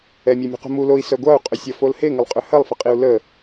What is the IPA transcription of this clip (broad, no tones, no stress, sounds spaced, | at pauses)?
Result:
ɛ mʲ e mʲ ṳ q ṳ m u l o i̯ s œ ɡʷ a u̯ qʼ ʏ sʲ ɐ f o l h e ŋ ə lˠ qʼ ʏ h ɐ lˠ f ə qʼ i u̯ l ə